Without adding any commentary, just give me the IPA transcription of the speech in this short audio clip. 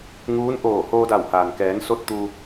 ŋuː˧˥n ʔoː˧˩ hoː˧da˧˩whaː˩n kɛː˩˧nso˧t̚ t̪u˧

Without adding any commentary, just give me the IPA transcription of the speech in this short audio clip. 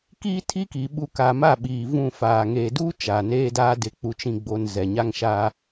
kiː˦tʰi˦ki˨ ɓu˨ ka˨ ma˦˨ɓiː˨ vũ˦˨faː˨ ŋeː˨duː˦ t͡ʃa˨neː˦daː˦ dɪ˨ k͡pu˨t͡ʃĩ˨ɡ͡bo˨n zɛ˨ɲa˦ŋʃaː˦

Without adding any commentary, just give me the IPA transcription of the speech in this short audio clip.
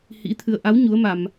hḭ˧˥t̪ʰɨ˧ə̯ ʔa˨˦w ɲu˨˦ə̯ma˧m

